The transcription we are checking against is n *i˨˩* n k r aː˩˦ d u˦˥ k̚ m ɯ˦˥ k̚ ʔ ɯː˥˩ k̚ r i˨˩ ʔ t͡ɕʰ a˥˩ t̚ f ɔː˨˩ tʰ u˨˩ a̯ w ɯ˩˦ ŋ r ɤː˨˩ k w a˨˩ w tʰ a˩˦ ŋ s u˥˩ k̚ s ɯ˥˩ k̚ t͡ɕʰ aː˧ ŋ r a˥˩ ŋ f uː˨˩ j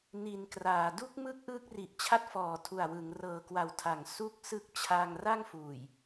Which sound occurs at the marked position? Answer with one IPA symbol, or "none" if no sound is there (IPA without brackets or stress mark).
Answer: i˨˩